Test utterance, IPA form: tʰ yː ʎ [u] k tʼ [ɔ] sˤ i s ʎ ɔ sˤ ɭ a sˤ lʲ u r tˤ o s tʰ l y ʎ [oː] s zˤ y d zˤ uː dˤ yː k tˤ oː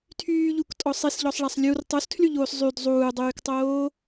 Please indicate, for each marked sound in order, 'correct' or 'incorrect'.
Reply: correct, correct, correct

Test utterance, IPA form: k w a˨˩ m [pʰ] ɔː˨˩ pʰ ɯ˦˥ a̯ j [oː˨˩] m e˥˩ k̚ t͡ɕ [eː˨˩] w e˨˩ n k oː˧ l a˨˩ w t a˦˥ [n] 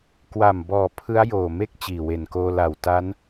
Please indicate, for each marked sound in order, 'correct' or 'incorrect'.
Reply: incorrect: b, correct, incorrect: iː˨˩, correct

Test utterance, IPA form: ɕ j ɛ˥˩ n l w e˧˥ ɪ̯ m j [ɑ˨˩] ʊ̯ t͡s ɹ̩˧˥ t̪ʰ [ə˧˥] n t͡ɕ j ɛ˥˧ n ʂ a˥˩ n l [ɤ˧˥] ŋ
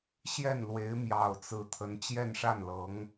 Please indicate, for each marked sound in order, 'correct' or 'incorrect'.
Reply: correct, correct, correct

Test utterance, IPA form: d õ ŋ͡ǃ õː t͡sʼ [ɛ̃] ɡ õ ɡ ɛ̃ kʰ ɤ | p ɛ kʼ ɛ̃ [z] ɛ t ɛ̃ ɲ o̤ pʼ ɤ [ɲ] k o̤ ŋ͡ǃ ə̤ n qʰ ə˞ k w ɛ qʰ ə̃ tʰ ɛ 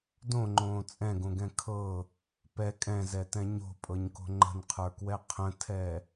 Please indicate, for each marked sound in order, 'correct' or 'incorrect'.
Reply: correct, correct, correct

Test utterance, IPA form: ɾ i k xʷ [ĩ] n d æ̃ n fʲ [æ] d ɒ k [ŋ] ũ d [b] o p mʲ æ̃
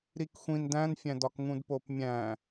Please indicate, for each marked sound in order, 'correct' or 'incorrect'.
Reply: correct, incorrect: æ̃, correct, incorrect: p

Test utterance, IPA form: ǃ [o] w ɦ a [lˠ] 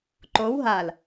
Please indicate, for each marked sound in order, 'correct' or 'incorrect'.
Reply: correct, incorrect: l

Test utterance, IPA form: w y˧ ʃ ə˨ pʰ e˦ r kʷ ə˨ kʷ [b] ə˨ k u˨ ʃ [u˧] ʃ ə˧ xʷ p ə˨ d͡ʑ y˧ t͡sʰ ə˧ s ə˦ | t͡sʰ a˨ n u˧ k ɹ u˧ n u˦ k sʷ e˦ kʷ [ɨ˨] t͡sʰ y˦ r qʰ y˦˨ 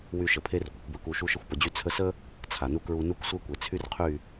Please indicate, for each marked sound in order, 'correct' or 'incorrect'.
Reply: correct, correct, incorrect: e˨

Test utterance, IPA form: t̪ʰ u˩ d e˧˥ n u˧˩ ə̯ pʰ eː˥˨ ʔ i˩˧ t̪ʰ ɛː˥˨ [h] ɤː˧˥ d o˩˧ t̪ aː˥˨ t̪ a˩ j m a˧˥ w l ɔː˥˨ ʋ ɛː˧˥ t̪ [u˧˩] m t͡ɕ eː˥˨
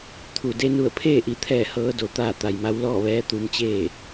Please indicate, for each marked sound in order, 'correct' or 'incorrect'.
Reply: correct, incorrect: u˧

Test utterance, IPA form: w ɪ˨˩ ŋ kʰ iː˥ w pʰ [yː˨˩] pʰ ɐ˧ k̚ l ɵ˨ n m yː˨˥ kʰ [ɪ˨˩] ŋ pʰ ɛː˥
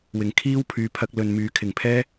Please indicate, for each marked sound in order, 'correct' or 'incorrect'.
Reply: incorrect: yː˨˧, correct

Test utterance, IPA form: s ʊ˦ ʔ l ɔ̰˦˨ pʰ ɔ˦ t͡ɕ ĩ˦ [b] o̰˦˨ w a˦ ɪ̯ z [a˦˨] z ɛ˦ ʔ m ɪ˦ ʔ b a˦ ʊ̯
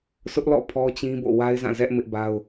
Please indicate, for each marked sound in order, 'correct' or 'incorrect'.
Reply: correct, incorrect: ã˦˨

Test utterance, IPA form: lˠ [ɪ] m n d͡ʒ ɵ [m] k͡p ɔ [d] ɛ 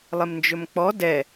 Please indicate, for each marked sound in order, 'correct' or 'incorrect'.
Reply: correct, correct, correct

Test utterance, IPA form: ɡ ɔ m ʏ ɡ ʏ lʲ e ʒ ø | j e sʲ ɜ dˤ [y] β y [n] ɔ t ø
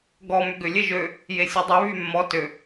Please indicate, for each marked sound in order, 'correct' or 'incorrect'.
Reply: incorrect: ø, incorrect: mː

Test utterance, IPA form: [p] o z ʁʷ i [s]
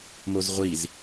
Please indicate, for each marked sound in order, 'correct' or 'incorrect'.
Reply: incorrect: m, incorrect: z

